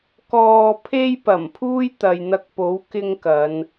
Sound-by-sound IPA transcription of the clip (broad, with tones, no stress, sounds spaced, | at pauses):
k ɔː˨ pʰ e˧ j p ɐ˨˩ m pʰ uː˥ j t̪ ɐ˨ j n̪ ɐ˧ k̚ p o˨˥ w k ɪ˧ ŋ k ɐ˨˧ n